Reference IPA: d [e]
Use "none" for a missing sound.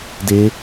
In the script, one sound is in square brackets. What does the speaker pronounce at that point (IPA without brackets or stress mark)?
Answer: e